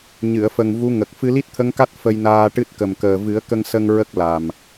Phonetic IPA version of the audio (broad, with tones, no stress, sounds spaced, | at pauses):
ɲ ɨ˨˩˨ ə̯ f ə˨˩ ŋ v u˧˥ ŋ ə˨˩ k̚ f ɨ˧ l i˦˥ t̚ t̪ʰ ə˧˥ ŋ k a˦˥ t̚ f ə˧ j n aː˧ ʈ ɨ˦˥ t̚ k ə˨˩ m k əː˨˩ v ɨ˨˩˦ ə̯ k ə˧ ŋ s ə˧ ŋ ɹ ə˦˥ k̚ l a˨˩ m